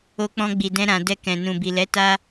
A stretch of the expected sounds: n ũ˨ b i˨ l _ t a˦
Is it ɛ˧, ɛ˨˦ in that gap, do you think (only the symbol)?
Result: ɛ˨˦